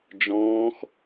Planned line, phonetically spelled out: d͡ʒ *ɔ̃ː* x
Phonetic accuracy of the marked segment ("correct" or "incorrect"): correct